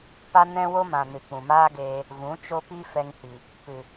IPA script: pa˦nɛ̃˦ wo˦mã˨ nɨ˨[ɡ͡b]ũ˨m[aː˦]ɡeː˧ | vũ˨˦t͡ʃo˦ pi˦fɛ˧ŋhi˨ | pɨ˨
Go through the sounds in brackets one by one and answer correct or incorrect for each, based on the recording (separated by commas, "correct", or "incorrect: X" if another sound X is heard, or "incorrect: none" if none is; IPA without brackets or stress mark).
incorrect: k͡p, correct